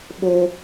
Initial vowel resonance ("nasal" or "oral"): oral